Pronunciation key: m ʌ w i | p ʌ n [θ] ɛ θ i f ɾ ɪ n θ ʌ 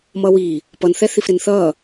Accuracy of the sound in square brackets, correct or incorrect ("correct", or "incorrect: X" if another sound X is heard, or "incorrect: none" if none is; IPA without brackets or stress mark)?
correct